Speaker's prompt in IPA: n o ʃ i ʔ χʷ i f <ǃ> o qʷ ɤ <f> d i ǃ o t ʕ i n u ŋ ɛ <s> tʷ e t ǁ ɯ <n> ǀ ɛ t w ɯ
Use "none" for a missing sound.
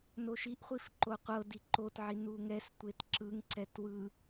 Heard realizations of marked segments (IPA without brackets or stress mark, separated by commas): ǃ, none, s, ŋ